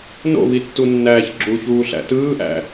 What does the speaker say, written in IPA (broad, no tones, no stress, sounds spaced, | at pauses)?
n o̰ β i tː u nː æː ç ɡ͡ǁ u ç uː ɬ æ̰ t ɯː ʔ æ̰